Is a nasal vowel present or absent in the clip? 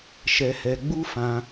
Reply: present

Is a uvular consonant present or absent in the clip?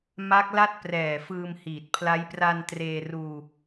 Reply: absent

